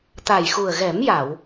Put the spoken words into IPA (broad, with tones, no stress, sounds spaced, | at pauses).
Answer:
t̪ a˨˩ j x u˨˩ ə̯ ɣ ɛ˨˩˦ m j a˨˩˨ w